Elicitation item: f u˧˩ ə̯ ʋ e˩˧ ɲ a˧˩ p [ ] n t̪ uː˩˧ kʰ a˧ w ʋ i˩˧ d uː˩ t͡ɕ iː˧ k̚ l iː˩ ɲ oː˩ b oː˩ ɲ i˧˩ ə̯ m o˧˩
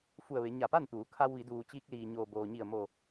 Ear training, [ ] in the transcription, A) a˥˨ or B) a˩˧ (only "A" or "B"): A